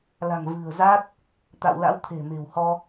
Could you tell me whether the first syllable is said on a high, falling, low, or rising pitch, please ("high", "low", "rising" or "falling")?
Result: low